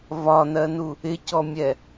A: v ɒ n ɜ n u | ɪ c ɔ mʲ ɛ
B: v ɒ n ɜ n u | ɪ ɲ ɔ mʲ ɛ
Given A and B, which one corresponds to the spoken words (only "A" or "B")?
A